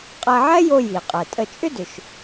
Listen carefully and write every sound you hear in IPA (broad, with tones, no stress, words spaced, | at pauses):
qʼɛ˧ʕɛ˥jo˧ ji˩ qʼɛ˩tʼə˧ t͡ʃʼʏ˥dʏ˩ʃ